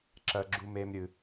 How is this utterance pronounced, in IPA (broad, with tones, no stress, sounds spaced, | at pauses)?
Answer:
ǁ ɜ˧ ɡ͡ǁ u˧ m e˧ m ɾʲ ɨ˧